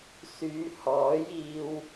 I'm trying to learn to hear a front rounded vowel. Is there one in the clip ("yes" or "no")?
yes